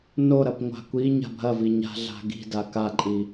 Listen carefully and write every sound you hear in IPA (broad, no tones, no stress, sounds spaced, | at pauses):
n o ɾ ɐ p ŋʷ a̤ kʷ i ɲ a̤ bʱ ɐ v i ɲ a̤ ɮ a̤ ɡ i̤ d a k a ǃʼ i